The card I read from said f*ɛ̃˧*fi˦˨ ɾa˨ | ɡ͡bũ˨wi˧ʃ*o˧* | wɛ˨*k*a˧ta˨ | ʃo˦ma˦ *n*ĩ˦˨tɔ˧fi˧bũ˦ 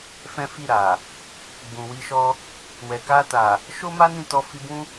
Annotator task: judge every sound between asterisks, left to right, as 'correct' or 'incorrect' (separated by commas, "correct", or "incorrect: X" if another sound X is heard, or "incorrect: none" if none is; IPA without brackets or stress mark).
incorrect: ɛ̃˦, incorrect: ɔ˧, correct, correct